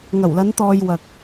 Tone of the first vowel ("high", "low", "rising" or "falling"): low